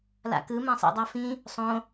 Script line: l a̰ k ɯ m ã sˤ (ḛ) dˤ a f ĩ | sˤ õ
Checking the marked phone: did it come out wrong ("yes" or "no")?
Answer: no